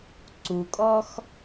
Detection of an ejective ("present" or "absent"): present